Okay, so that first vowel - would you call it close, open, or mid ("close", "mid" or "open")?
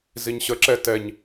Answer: close